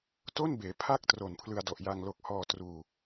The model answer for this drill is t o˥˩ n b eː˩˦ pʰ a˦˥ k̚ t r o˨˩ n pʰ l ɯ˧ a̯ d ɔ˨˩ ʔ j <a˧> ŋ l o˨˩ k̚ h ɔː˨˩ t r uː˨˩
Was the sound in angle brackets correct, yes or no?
yes